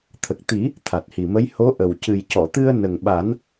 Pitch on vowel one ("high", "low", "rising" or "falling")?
low